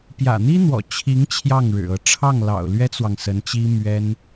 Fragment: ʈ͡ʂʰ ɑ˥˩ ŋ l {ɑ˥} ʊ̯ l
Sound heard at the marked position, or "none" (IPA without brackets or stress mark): ɑ̰˨˩